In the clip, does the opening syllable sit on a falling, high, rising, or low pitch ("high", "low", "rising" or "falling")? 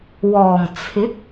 low